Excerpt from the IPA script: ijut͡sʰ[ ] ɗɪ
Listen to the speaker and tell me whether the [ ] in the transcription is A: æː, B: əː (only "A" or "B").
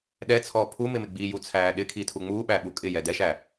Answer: A